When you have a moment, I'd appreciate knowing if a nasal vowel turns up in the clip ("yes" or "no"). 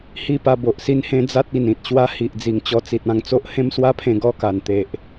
yes